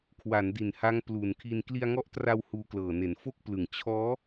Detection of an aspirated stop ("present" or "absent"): present